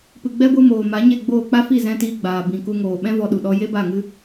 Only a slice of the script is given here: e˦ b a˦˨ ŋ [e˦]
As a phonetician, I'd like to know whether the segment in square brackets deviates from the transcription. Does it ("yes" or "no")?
yes